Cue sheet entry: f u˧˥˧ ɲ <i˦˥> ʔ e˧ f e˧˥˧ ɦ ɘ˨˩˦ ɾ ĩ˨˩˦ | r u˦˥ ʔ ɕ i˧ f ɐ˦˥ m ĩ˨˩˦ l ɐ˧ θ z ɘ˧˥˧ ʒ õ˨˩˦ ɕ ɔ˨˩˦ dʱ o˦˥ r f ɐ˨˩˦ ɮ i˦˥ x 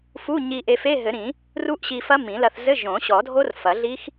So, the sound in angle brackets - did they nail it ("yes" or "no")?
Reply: no